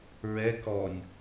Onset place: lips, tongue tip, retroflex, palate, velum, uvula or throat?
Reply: tongue tip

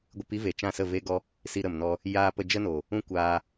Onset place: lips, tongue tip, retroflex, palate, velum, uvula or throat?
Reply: velum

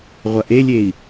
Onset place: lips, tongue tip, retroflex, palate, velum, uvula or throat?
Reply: uvula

